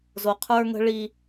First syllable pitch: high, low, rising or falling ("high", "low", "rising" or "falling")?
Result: low